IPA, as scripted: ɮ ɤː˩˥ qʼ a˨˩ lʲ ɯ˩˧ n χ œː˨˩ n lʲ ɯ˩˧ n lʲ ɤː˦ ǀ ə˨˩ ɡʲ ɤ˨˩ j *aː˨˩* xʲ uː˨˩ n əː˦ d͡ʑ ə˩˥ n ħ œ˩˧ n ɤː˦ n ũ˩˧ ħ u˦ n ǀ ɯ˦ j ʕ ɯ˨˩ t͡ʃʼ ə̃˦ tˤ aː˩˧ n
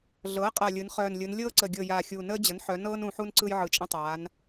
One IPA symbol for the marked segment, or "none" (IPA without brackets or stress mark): aː˨˩